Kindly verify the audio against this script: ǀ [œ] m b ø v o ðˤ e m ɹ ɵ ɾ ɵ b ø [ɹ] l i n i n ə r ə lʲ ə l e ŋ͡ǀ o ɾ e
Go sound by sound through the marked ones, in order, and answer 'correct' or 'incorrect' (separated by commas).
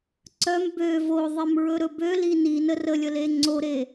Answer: correct, incorrect